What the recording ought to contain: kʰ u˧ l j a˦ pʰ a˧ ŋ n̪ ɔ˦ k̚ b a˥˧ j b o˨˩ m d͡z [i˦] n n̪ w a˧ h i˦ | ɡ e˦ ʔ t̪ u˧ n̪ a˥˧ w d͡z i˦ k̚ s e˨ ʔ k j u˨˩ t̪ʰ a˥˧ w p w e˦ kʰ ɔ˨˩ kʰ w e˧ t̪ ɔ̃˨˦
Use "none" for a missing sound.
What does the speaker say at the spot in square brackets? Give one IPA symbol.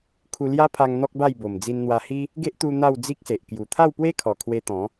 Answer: i˧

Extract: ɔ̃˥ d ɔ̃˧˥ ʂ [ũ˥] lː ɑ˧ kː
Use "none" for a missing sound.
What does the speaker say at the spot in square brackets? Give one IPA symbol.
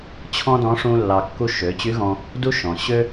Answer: ũ˥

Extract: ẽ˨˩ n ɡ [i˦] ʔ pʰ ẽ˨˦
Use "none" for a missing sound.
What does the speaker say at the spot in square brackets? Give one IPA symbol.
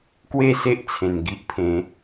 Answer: i˦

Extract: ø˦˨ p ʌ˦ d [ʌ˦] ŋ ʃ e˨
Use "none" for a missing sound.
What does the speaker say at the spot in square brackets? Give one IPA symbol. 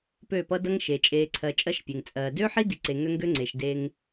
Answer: ʌ˦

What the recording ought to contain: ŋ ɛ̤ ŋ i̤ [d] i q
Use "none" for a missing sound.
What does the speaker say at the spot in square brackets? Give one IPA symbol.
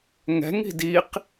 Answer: d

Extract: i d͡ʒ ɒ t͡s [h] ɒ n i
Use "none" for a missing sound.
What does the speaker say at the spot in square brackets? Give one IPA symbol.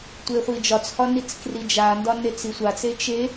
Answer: h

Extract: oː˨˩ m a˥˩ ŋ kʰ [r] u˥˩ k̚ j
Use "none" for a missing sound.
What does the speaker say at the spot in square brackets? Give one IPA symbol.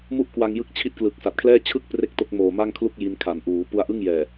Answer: l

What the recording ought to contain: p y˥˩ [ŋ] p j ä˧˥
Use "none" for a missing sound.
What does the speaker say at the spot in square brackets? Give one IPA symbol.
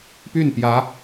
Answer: n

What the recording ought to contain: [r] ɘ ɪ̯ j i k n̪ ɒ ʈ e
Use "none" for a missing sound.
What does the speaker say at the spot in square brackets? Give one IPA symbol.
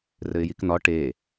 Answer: r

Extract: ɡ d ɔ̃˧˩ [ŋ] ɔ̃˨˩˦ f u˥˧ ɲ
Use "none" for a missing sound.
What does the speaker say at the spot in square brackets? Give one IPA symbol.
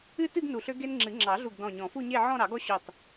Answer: ɲ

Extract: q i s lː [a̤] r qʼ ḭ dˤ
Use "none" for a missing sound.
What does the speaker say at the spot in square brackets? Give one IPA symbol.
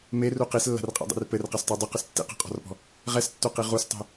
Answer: a̤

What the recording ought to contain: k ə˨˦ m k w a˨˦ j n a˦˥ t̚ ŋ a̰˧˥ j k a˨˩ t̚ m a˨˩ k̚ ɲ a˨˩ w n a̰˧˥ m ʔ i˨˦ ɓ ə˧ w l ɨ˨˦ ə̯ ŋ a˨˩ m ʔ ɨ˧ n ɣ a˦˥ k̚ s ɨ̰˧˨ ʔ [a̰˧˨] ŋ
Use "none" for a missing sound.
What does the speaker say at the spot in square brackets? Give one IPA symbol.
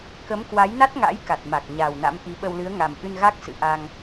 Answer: a˧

